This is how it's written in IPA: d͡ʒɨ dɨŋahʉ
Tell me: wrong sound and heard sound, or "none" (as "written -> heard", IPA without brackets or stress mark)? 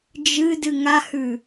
none